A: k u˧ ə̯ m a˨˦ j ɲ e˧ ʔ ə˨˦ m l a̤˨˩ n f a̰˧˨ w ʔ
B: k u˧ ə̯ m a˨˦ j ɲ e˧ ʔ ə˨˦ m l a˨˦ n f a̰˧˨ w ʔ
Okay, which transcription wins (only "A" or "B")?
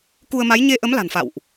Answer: A